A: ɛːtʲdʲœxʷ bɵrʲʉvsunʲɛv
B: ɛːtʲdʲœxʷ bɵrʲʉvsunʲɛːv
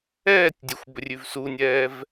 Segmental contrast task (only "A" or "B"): B